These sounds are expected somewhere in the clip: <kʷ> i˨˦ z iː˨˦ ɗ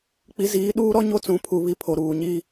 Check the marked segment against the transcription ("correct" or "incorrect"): incorrect